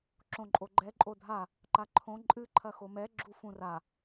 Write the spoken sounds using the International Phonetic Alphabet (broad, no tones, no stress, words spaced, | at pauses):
ǁõǃʼoɡ͡ǃɛ ǃʼodʱa | ǃaǃʰõ ǃʼɨ ǃʰɐxomɛ ɡ͡ǁufũra